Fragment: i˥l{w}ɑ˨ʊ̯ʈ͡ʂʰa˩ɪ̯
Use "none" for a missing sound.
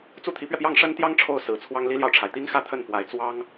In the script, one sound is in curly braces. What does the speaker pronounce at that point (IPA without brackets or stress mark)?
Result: j